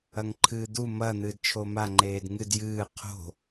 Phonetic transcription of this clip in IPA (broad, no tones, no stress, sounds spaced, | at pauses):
ɐ ŋ ǃʰ ɨː d̪ u m ɐ n̪ ɨː d t͡ʃʰ o m a ŋ͡ǃ eː d ŋ ɨ d j ɨː qʰ o̤